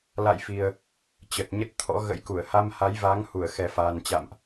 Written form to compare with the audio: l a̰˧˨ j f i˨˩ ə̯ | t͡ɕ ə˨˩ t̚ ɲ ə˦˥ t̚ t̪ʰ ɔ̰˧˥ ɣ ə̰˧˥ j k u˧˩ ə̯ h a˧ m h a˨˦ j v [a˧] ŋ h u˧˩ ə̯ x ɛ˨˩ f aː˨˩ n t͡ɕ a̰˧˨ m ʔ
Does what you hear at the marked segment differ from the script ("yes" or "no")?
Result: yes